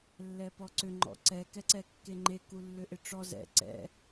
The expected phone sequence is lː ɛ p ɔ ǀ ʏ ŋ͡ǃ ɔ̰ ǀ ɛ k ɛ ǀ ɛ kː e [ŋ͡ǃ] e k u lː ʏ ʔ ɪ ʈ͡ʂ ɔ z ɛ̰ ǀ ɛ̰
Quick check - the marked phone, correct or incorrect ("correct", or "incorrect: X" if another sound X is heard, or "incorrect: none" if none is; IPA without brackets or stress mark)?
correct